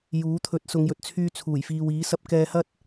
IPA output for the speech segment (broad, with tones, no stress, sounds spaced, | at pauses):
j uː˨˥ t̪ʰ ɵ˨˥ t̚ s ʊ˨˧ ŋ j ɵ˨ t̚ t͡sʰ yː˧ t͡sʰ uː˨˩ j f iː˨ w iː˨˥ s ɐ˧ p̚ k ɛː˧ h ɐ˥ t̚